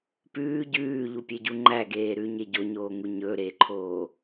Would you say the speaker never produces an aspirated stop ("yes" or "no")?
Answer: no